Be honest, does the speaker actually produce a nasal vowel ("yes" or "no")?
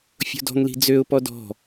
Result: no